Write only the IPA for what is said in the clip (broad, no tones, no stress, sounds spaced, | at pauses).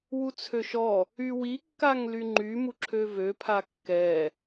w u t͡sʰ ø ʃ ɔ | y w i kː a ŋ l y ŋ͡ǃ y m u ǁʰ ø v ø pʰ a kː ɛ